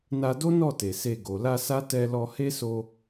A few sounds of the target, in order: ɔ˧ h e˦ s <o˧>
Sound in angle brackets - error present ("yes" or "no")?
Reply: no